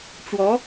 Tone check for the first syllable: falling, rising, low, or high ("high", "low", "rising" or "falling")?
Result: rising